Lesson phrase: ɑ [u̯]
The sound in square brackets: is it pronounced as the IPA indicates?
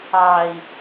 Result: no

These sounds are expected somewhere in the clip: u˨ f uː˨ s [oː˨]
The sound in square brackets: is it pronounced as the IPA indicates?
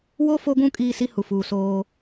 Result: no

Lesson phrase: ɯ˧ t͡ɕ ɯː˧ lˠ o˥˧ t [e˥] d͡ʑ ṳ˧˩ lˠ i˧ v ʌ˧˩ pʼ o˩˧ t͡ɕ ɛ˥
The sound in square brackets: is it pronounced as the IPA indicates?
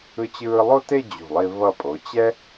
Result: no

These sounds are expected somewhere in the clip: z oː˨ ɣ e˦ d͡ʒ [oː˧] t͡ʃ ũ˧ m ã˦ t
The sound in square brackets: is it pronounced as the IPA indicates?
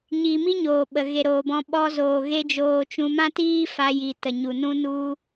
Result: yes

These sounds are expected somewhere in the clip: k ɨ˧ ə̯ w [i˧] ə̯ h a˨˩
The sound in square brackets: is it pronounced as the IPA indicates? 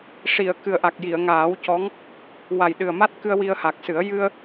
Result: yes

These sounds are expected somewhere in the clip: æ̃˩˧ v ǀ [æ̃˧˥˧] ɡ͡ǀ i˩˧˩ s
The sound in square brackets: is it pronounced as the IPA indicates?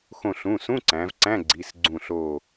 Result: yes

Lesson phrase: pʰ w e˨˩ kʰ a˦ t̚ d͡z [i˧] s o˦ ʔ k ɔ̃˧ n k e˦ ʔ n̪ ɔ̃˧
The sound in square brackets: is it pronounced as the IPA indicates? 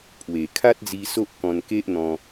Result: yes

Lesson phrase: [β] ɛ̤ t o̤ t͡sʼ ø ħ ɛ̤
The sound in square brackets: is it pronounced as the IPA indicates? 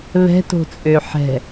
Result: yes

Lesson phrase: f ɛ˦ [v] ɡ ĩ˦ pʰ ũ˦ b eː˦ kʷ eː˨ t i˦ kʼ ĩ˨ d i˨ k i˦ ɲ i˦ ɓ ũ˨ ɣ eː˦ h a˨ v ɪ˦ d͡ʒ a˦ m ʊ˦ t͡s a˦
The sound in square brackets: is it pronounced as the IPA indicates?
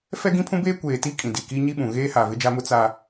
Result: no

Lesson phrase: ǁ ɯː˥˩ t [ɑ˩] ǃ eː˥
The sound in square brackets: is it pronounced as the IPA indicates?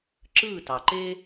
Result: yes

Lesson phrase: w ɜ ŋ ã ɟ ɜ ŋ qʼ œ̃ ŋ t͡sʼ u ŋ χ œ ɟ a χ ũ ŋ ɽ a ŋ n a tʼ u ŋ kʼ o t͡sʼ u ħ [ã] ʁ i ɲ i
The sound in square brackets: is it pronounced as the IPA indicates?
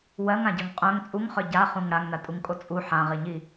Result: yes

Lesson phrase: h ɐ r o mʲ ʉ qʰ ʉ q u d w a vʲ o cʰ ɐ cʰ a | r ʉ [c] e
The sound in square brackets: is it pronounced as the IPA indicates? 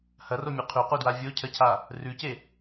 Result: yes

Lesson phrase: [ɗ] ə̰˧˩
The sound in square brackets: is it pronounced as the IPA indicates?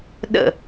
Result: yes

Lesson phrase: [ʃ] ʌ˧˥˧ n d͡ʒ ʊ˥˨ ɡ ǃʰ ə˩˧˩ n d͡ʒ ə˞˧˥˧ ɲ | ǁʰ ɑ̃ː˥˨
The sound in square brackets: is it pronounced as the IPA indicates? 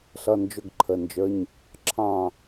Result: no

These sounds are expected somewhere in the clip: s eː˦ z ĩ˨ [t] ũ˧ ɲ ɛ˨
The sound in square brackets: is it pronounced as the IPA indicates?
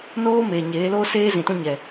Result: yes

